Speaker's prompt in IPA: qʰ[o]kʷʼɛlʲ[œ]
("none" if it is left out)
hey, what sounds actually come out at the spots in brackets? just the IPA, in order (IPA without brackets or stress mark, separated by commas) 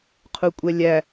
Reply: u, æ